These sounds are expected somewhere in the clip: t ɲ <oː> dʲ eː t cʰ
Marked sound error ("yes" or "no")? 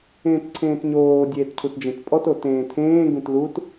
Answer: no